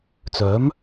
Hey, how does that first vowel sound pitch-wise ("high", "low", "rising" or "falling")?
rising